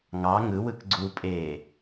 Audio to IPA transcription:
ŋ ɑ ŋ ɯ w ɯ k ɡ͡ǀ u pʼ eː

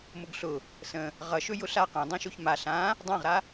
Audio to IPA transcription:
m ʊ ɡ ɬ ʊ | s ə̃ | ʁ ʌ ʃ ɵ j ʊ ɬ a q ɛ̃ dˤ ɛ̃ ʃ o ç m a ɬ ã | dˤ ã ʁ ɾ a

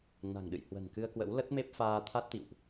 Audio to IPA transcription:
n a̤˨˩ ŋ ɗ ɨ̰˧˨ j h w ə̤˨˩ n k ɨ˧ ə̯ k w ə̰˧˥ w l ə˦˥ t̚ m e˦˥ p̚ f aː˧ t̪ʰ a˦˥ t̚ t̪ ḭ˧˨ w ʔ

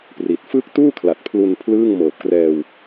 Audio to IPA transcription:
p r i˨˩ t̚ f ɯː˦˥ k̚ t uː˥˩ kʰ l a˨˩ t̚ pʰ l u˧ n pʰ l ɯː˥˩ ŋ m ɤː˨˩ p̚ k r ɛː˧ w

